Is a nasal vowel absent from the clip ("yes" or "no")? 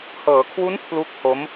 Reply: yes